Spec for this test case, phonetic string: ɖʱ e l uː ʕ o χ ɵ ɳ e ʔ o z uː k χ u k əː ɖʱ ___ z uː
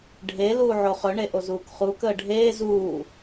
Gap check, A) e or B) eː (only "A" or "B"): B